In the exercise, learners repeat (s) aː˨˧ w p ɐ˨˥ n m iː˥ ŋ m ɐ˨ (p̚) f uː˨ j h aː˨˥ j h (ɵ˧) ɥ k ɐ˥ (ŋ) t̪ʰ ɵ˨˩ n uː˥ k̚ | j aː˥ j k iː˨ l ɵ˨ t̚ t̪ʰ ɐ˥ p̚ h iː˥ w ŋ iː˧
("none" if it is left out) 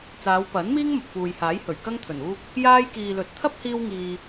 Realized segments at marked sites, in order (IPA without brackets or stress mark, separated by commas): t͡s, p̚, ɵ˨˩, ŋ